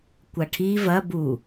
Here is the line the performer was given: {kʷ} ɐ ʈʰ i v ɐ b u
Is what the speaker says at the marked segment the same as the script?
yes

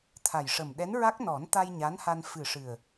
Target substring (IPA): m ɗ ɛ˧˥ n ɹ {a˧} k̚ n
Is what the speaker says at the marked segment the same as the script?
no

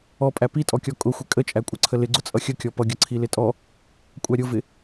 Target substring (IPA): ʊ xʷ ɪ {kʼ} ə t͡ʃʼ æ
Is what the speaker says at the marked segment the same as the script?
yes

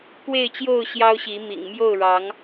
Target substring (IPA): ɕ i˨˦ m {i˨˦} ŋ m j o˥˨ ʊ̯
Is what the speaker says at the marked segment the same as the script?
no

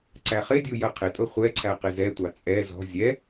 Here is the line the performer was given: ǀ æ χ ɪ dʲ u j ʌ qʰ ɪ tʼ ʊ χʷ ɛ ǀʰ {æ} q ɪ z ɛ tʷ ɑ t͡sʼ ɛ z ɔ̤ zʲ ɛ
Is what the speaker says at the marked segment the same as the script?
yes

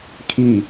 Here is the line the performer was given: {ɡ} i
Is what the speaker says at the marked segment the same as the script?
no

